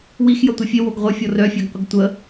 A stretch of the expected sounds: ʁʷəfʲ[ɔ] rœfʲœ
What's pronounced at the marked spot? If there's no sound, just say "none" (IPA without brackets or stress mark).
ɔ